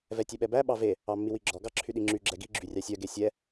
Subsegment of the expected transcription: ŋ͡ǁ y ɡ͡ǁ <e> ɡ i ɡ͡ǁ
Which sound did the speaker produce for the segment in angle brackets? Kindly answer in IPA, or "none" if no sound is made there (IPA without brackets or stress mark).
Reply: ɛ